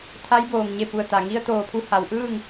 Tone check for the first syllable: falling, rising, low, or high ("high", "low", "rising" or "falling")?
rising